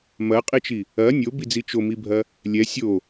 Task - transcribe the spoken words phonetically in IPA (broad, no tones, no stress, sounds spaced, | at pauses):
m ɐ qʼ i t͡ʃ i | ɐ nʲ o b i d͡z i t͡ʃ o m i bʱ ɐ | lʲ ɛ sʲ o